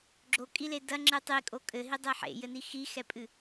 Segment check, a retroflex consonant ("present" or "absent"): absent